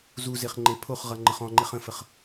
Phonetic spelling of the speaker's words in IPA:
zuzeχ ŋ͡ǃepʰoχʁʌ ŋ͡ǃəχɔ̃ŋ͡ǃeχ ə̃fəχ

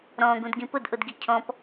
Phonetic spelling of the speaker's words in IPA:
ɾɔ̃ːɡũdɡĩ pʊdʔʊdɡi cʰɔ̃p

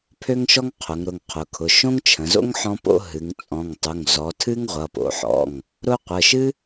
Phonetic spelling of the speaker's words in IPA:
pʰø˥ŋʃɔ˥ŋqʰʊ˩˧ŋ ɾʊ˩˧˩ŋqʰʊ˩˧kʰʊ˩˧˩ ʃõ˥ŋt͡ʃʰə̃˩˧zo̰˥ŋ ħɔ̃˥po̰˥ ɦɨ˩˧ŋt͡sʼɔ̃˩˧˩ŋ tˤʊ˩˧˩ŋ zɔ˩˧ tʰɨ˥ŋʁʷʌ˩˧˩po̰˩˧ħɔ̰˩˧˩ŋ | ɾʊ˥ qʷə˩˧˩ʃɨ˥

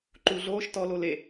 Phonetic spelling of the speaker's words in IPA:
ǃu ɮoːʃ tɔlo le

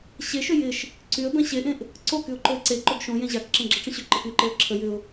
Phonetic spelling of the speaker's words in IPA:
ɕeʃʏ jɪʃ | ǀyə̯ bɛ̃ɕeʔẽʔ | ǀokyʊ̯ ǃoɪ̯ǀe ǃoɡʃõ jẽʑakǁẽɡ͡ǁə ʈ͡ʂə̃ɕʏ ǃɪkyǃeə̯ ǁʰə jʏʊ̯

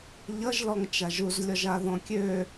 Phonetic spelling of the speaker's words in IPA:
ʎʌʒlɔŋ t͡ʃaʒuzlʲɔʒa ðɔ̃kʲø

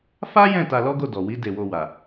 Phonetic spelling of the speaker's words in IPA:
fa˦jɛ̃˦˨ ta˧lɔ˦ɡo˦˨ dɔ˨wi˨˦ de˧wo˧wa˨

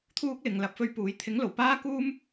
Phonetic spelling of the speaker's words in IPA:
t̪ʰuː˥k̚lɪ˨ŋlɐ˨˥p̚ fɵ˧ɥpuː˨˥j t̪ʰɪ˨˥ŋlo˨˩w paː˥kuː˥m

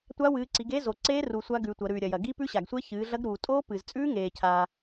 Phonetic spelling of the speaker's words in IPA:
tʷa˦˥wɨː˨˦ǀi˨˦ɡe˦˥ zo˨ǀeː˦˥ru˨ sʷa˦˥ɡʉ˨˦tʷɐ˨˦ ɾʉː˨ɾʲɐ˨jɐ˨ ɡi˦˥pʉ˦˥ɕa˨ɡsʷe˦˥ çɨː˨˦ɮɐ˦˥ɡ ɾuː˨tʼoː˦˥pɨː˨zt͡sʼʉː˦˥ ŋeː˨cʰa˨

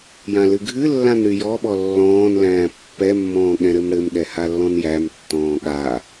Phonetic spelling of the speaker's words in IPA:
jãlɨɡʱɨlːãn ɾyjɔɓɔ lːɔ̃ːnlæ̃ː pːɛmːɔ̃ː ɠɛ̃ɾɘmɽɘmɠɛ halːɔ̃njæmtːɔ̃ː ɠa

